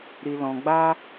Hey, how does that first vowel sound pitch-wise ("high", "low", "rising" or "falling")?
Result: low